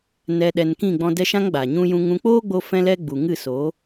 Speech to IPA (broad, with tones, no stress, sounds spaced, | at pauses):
n ɛ˧ ɗ ɛ˧ n k ĩ˦˨ ɡ͡b ɔ̃˧ d ɛ˦ ʃ ã˦ ŋ ɡ͡b a˨ ɲ ũ˧ j ũ˧ ŋ ũ˧ k͡p oː˦ ɡ͡b o˧ f ɛ̃˧ l ɛ˧ ɡ͡b u˨ ŋ ɨ˦˨ s oː˨˦